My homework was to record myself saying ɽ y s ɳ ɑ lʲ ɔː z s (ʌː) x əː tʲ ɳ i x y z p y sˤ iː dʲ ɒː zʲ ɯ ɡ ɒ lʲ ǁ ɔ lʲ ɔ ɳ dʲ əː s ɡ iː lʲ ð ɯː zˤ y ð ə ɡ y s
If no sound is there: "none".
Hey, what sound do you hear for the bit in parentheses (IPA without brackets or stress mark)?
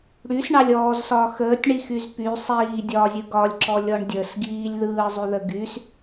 ɒː